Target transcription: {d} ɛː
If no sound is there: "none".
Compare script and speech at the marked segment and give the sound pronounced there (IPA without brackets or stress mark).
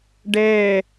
ɖ